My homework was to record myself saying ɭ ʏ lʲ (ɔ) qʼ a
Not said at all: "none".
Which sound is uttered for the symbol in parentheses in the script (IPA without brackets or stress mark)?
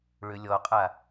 ɔ